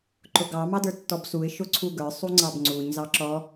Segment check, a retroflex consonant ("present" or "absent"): absent